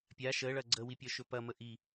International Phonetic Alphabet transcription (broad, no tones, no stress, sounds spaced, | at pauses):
pʲ a ʃ ə ɭ ɐ ɡ͡ǀ ə w i pʲ ɒ ʃ ɵ p ɐ m ə ʔ i